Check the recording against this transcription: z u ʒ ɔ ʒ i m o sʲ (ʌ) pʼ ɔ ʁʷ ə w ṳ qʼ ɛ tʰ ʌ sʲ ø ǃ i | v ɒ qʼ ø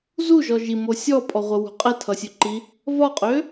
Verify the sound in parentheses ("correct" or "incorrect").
incorrect